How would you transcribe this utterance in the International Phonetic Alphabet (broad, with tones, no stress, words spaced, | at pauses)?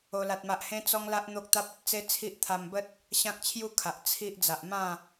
o˦la˦t̚ma˦ʔ hẽ˦t͡sɔ˦ŋla˦ʔ n̪o˦k̚t̪a˦p̚ ə˨t̚t͡se˦t͡sʰi˦ʔt̪ʰa˧m bə˦t̚ | ɕã˦k̚t͡ɕʰju˦kʰa˨ʔ t͡sʰi˦ʔ d͡za˨ʔmã˥˧